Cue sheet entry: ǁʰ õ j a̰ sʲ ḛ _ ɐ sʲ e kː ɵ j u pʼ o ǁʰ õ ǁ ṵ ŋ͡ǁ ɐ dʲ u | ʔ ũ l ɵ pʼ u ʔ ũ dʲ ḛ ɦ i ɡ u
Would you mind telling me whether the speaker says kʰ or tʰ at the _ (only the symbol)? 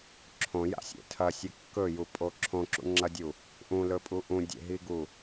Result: tʰ